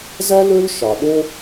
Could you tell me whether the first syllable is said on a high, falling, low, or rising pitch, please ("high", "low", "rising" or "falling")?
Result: high